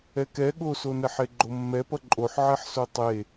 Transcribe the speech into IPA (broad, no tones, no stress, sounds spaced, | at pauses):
ɛ k ɛ ɠ o s o n ɛ ħ e ɡ͡ǃ o mː ɛ p ʌ ǃʼ o ħ ʕ ɛ ħ s o tˤ e